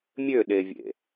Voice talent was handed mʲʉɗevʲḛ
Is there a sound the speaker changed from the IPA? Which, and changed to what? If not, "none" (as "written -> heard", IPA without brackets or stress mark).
ʉ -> ø